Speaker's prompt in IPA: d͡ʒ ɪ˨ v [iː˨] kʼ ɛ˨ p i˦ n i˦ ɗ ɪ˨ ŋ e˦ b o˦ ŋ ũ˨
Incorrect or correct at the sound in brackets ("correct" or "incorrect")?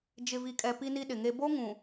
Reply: incorrect